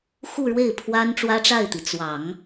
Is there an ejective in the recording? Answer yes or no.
no